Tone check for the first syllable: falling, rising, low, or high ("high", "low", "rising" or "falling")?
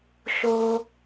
high